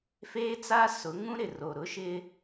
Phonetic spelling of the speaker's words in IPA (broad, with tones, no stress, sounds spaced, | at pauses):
f eː˦ t͡s a˦ s ʊ˨˦ ŋ ũ˦ ɾ ɪ˨ r o˨ ɾ ʊ˦ ʃ ɪ˦